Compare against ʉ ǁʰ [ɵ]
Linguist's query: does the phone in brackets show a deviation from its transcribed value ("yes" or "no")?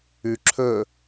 no